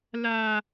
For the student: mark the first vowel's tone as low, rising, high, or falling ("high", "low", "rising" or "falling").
high